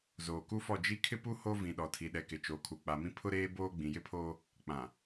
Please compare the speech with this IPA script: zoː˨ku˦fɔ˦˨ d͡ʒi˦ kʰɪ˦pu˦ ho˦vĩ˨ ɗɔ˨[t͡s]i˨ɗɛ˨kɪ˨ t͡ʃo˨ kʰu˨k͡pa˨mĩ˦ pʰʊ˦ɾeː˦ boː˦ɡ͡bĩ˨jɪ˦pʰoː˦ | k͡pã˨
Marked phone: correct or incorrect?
incorrect